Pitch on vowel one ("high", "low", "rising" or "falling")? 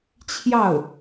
falling